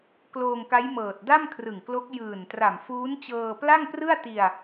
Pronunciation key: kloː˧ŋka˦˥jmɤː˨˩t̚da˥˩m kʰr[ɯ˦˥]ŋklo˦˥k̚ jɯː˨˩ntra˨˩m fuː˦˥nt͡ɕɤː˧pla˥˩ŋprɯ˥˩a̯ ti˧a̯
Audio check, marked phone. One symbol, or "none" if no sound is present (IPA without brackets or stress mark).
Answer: ɯ˨˩